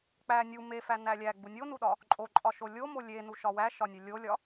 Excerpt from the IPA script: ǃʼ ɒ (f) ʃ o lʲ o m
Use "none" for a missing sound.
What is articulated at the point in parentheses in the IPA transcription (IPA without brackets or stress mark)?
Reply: none